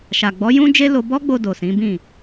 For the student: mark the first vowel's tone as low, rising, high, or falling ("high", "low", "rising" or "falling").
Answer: low